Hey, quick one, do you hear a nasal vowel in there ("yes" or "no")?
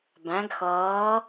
yes